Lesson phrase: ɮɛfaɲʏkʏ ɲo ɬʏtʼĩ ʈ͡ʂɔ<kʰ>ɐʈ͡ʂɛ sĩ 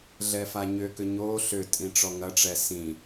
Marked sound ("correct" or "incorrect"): incorrect